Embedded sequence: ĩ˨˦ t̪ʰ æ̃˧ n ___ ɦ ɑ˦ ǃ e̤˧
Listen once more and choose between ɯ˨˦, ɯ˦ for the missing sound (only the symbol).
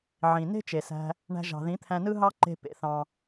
ɯ˦